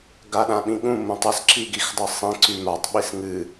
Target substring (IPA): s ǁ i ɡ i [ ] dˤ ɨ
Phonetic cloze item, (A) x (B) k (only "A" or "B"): A